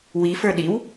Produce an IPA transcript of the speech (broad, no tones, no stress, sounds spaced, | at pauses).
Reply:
w i f ə˞ ɗ i w